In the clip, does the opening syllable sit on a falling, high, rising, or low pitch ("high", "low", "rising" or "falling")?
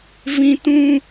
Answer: high